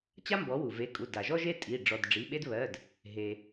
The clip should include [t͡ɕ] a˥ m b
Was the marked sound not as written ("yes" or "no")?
no